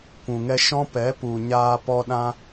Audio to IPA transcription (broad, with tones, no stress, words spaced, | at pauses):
kʷũ˨ŋɛ˧ʃɔ̃˦ pɛ˨˦pu˨ ɲaː˧pɔ˧ɗã˧